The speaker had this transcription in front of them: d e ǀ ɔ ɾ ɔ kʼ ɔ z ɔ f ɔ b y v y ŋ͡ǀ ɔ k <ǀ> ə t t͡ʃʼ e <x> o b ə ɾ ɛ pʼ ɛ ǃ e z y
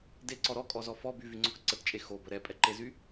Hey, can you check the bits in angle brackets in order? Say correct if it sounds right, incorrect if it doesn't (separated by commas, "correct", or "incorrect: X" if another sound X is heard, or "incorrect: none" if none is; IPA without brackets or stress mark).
correct, correct